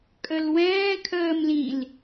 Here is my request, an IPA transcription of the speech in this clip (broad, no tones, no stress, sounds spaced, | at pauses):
kʼ ə l w ɛ̃ː kʰ əː m l ĩ l